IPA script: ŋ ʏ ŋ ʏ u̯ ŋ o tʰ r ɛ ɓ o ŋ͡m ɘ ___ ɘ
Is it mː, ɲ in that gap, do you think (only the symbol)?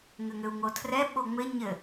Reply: ɲ